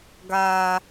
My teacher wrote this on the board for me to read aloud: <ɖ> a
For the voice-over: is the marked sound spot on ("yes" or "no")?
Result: no